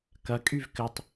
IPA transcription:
k ɐ kʼ y v k ɘ tˤ

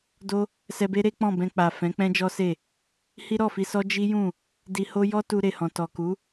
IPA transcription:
d o˦ | s ɛ˧ b e˦ ɾ e˦ k͡p ɔ̃˦˨ b ɛ̃˧ k͡p a˨ f ɛ̃˨˦ k͡p ɛ̃˦ d͡ʒ ɔ˦ s e˦˨ | h i˦ ɾ ɔ˦˨ f i˧ s ɔ˦ d͡ʒ i˦ j ũ˦˨ | d i˧ h o˦ j ɔ˦ t u˧ ɾ e˨ h ɔ̃˨ t ɔ˨ k u˨˦

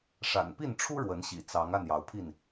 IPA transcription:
ʂ a̰˨˩ n p i˥˨ n ʈ͡ʂʰ u˦ ɻ w ə˨˦ n ɕ ḭ˨˩ t͡s ɑ˨˦ ŋ a˥˨ n j ɑ˨˦ ʊ̯ pʰ i˥˨ n

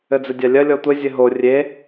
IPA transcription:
ɘ d͡z ɘ dʲ a lʲ ɐ lʲ ɔ tʷ ɘ zʲ ɘ ɦ o rʲ e

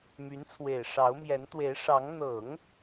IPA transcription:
m y˧˥ n t͡sʰ w e˨˩ ɪ̯ ʂ ɑ˧˥ ʊ̯ m j ɛ˧˥ n t̪ w e˧˥ ɪ̯ ʂ ɑ˧˥ ŋ n̪ ɤ˨˩˦ ŋ

